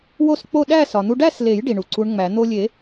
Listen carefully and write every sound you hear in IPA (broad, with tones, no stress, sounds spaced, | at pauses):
w o˥˧ s k͡p o˥˧ ɗ æ˥˧ s ɒ˩ n̪ u˧ ɖ æ˥˧ s l e˨˩˦ j ɖ i˩ ɳ u˩ ǀ u˧˥ ɳ ŋ͡m æ˨˩˦ n̪ o˧ lʲ e˨˩˦